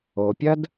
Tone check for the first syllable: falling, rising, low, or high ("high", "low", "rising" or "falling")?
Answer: low